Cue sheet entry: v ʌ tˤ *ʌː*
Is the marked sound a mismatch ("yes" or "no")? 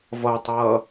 no